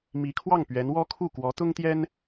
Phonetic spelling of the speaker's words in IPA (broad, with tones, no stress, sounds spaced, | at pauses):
m i˧˥ kʰ w ɑ˥˩ ŋ p ɥ ɛ˧˥ n w ɔ˥ kʰ u˥˩ k w ɔ˧˥ t̪ ʊ˥ ŋ t̪ j ɛ˥ n